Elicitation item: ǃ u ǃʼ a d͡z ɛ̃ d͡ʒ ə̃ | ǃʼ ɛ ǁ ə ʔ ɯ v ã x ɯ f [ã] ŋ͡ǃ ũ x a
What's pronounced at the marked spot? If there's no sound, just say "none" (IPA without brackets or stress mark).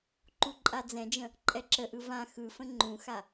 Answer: ə̃